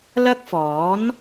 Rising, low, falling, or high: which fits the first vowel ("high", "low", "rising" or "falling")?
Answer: high